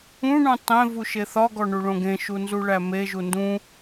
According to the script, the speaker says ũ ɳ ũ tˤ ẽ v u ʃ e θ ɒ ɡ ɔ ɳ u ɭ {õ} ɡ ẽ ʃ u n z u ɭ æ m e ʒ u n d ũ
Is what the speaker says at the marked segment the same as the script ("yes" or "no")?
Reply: yes